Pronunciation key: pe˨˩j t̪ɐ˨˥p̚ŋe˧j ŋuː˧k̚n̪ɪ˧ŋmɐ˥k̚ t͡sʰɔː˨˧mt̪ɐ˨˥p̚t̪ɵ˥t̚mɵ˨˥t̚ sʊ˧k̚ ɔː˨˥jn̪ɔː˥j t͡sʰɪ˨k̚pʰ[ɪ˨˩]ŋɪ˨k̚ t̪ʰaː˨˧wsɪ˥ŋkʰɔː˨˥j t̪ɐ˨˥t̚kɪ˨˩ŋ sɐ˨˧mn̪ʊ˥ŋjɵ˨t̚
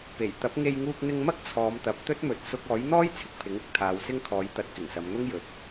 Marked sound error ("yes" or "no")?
yes